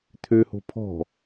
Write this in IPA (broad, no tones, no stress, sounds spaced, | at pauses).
t̪ʰ ø h o̤ pʰ ɔ̤